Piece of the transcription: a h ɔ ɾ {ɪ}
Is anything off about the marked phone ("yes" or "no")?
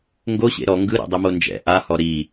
yes